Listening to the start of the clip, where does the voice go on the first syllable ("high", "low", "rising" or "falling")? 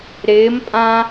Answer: rising